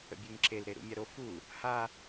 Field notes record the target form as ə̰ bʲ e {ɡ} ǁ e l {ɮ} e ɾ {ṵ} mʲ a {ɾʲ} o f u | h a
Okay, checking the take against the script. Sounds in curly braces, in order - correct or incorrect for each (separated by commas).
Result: incorrect, incorrect, correct, incorrect